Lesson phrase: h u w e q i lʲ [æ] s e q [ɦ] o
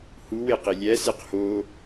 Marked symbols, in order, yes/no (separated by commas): yes, no